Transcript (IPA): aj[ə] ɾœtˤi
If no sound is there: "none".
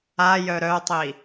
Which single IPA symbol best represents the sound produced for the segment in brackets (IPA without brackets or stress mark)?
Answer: œ